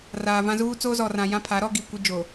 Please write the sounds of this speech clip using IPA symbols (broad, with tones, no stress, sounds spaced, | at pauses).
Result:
r aː˨ v ã˦ z uː˦ t͡s oː˦ z ɔ˨ r ã˨ j ã˦ pʰ a˨˦ ɾ ɔ˦ ɡ i˨ kʷ i˦ d͡ʒ o˨